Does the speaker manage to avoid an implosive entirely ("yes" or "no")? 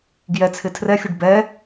yes